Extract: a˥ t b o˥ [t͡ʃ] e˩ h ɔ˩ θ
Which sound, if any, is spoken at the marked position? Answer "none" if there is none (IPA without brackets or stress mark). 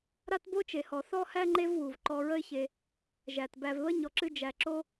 t͡ʃ